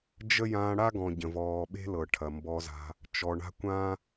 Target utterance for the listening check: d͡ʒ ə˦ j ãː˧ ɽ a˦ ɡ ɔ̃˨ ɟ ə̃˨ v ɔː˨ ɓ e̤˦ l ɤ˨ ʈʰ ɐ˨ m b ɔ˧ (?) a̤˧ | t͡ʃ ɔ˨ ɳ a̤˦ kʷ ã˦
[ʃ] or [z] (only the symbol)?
z